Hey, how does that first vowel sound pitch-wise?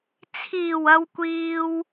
low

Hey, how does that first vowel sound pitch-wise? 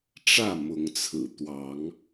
falling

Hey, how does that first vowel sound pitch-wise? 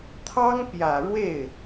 high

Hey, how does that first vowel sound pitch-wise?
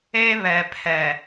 high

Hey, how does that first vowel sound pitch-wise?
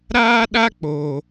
high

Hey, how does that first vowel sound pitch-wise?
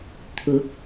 rising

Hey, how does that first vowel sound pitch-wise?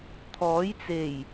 rising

